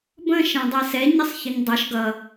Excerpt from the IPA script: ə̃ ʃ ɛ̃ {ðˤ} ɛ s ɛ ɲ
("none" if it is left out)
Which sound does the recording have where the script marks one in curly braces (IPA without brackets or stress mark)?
dˤ